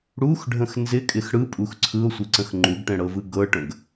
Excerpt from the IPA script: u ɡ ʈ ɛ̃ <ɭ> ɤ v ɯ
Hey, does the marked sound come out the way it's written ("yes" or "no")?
no